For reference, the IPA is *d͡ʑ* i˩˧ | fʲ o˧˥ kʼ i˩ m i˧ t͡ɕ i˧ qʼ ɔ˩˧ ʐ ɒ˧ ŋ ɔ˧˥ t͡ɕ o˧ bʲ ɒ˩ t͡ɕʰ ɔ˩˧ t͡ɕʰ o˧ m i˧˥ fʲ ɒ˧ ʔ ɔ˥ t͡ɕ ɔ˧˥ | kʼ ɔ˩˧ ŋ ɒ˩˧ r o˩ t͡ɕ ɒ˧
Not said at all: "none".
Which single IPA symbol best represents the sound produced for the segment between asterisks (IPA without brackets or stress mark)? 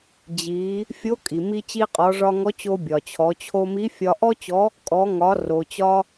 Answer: d͡ʑ